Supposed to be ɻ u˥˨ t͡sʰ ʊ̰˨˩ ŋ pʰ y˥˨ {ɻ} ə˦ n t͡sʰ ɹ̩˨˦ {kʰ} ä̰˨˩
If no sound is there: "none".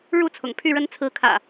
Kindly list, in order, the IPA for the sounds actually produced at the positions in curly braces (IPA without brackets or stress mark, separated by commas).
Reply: ɻ, kʰ